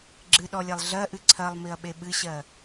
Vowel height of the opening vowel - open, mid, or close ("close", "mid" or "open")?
close